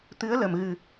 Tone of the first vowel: rising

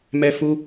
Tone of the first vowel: high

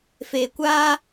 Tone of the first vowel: low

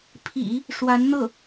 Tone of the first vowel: low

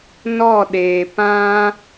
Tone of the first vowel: falling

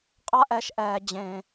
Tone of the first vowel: high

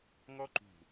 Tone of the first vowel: high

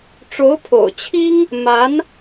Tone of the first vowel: rising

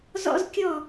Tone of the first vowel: high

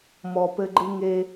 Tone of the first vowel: low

